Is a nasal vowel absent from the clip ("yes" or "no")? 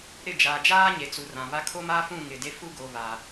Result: no